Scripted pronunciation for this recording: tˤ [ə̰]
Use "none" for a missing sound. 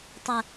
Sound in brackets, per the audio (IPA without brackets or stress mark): ə